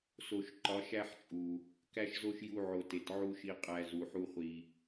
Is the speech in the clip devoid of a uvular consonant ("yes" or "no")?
no